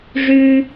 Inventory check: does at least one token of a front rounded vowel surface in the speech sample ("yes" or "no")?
yes